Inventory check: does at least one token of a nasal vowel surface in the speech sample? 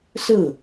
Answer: no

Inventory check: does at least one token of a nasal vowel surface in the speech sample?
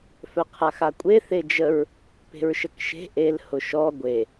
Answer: no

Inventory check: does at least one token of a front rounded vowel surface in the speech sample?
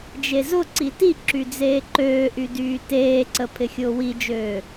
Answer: yes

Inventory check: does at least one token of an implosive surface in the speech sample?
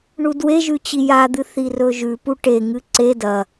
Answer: no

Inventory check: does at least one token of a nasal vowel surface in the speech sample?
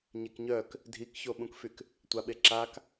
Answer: yes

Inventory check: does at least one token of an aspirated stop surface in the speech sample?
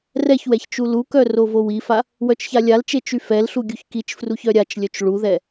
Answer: no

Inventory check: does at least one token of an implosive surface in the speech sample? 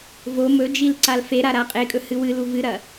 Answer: no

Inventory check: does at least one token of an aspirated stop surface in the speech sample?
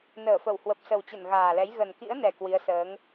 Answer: no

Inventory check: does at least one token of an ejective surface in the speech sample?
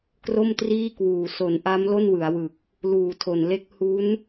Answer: no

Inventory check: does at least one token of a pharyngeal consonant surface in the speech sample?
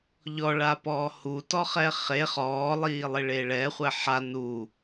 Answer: yes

